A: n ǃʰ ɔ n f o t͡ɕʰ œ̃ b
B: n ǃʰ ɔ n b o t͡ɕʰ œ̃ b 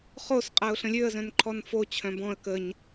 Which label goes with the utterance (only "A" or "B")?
A